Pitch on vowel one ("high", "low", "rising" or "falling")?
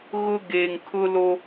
high